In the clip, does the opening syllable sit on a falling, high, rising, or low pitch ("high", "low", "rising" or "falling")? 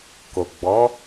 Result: low